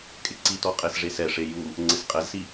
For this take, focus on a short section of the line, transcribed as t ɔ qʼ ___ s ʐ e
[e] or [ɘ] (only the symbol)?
e